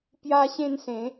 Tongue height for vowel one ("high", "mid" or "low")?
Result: low